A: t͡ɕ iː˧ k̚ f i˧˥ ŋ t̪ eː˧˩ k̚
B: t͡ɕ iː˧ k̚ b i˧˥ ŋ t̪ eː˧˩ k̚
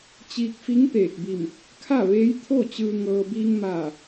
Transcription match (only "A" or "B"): A